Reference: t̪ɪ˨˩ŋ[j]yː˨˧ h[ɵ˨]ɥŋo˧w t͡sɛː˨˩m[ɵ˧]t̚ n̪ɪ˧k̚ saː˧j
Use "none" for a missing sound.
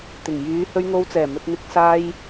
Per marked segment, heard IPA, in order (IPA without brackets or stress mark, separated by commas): j, ɵ˧, ɵ˨